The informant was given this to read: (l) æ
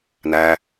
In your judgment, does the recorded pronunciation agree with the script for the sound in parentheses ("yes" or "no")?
no